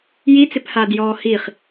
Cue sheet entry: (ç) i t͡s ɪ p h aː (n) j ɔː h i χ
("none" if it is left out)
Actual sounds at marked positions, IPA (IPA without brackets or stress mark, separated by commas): j, d